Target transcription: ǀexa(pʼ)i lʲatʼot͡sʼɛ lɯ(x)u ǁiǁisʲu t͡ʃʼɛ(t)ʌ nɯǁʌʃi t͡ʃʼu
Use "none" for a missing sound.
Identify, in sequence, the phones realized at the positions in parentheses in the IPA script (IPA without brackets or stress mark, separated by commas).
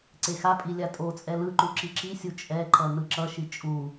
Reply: pʼ, ǃ, ǃ